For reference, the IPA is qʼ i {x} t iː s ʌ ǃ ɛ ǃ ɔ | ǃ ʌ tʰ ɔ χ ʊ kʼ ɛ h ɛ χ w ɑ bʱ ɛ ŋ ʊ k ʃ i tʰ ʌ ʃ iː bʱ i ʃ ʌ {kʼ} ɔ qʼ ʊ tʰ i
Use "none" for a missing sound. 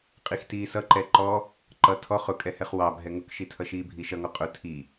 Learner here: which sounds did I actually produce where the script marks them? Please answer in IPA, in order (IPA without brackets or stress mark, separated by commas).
x, ŋ